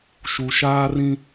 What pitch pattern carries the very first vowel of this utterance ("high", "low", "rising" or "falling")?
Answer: low